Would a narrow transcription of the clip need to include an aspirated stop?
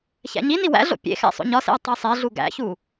no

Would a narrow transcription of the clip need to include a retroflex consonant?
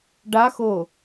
yes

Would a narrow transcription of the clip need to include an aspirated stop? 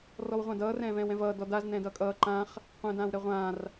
no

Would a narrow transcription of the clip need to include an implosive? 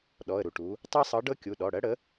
yes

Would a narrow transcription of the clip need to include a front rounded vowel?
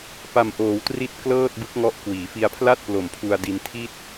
no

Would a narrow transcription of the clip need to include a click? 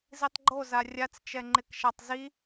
yes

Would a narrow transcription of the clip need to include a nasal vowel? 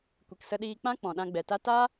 yes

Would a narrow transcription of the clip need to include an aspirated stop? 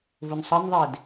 no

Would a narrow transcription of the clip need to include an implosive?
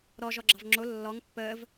no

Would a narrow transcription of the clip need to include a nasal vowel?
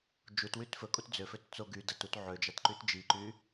no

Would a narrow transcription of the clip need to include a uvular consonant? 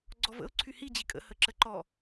no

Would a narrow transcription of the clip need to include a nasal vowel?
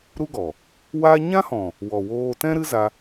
yes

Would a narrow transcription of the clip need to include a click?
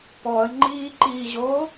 yes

